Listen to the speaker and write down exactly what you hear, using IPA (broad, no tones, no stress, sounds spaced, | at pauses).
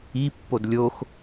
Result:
i pː o d lʲ o x